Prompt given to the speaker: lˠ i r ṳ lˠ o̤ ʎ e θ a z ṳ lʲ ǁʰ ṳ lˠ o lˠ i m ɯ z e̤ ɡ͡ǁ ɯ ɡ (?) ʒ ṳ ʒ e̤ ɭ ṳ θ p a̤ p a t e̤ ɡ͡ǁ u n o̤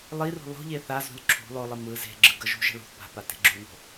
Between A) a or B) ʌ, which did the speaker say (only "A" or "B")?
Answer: B